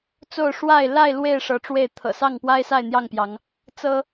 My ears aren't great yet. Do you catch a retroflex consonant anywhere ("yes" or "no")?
yes